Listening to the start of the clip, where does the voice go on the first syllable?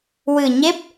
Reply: low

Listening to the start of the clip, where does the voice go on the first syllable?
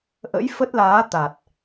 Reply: rising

